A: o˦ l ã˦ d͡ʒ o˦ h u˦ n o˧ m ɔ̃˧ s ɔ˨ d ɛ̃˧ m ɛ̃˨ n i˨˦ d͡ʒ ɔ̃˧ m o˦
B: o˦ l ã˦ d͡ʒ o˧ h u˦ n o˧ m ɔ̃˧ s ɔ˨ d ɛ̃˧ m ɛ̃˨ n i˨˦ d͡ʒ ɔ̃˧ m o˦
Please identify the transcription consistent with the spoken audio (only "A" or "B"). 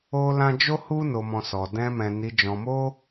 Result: A